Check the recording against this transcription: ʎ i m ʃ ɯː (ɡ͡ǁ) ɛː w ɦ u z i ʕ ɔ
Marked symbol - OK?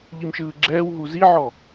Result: yes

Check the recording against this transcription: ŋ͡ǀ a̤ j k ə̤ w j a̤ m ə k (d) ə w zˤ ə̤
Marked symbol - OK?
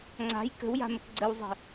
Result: no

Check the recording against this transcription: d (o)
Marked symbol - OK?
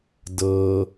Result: no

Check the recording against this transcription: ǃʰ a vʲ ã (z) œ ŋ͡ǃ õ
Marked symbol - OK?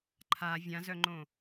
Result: yes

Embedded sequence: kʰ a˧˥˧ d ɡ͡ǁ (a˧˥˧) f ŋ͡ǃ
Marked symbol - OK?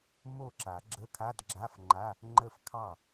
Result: yes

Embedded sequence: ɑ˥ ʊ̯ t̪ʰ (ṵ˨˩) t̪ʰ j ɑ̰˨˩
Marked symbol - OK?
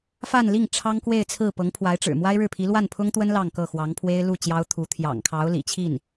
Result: no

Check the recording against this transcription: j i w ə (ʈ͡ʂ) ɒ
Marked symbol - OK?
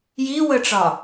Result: yes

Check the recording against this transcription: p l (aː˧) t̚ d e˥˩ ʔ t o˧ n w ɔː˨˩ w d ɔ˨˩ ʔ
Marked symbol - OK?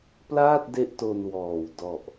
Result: no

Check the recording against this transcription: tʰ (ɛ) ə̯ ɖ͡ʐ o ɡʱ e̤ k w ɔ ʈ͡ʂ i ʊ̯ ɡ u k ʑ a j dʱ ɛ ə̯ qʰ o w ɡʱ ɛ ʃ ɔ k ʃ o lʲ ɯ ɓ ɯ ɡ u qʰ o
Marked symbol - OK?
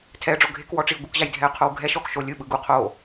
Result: yes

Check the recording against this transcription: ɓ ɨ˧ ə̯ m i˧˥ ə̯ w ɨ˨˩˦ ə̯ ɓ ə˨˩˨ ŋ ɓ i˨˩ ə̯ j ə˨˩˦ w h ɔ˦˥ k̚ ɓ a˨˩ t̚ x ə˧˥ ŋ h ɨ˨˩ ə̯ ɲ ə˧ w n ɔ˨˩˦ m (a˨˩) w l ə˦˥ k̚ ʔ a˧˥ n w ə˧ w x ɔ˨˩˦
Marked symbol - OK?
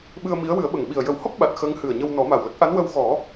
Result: yes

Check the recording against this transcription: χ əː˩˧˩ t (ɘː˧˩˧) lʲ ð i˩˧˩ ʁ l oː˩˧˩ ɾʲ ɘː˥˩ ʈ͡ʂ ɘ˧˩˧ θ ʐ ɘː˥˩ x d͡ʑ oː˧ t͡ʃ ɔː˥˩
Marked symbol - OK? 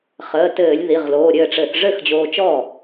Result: yes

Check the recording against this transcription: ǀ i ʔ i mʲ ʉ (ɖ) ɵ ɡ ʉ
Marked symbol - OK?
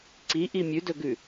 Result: no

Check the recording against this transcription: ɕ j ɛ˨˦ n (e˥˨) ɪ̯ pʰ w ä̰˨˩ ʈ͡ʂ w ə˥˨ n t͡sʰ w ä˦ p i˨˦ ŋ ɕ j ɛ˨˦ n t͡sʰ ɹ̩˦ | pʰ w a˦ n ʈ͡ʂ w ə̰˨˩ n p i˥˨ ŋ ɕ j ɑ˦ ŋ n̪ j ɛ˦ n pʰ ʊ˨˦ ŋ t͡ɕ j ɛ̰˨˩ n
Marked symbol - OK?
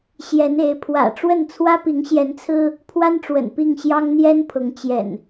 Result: no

